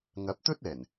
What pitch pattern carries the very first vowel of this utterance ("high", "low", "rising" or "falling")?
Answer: rising